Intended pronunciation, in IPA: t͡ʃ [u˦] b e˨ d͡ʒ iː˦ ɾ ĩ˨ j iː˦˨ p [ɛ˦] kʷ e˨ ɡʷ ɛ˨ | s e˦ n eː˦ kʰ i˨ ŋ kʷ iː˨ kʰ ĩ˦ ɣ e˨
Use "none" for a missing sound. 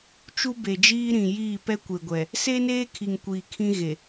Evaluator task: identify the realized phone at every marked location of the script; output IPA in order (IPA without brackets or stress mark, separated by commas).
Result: u˦, ɛ˦